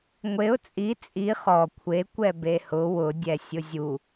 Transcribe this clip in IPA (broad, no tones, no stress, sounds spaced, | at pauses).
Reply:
ŋʷ e ʊ̯ t͡sʼ i t͡sʼ i χ ɔ kʷʰ e kʷ ɛ b e h ʊ w ʊ dʲ ɛ sʲ ʊ zʲ u